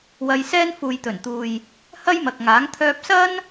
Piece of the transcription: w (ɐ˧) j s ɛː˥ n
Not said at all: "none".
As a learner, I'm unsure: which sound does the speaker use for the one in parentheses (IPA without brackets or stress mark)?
ɐ˧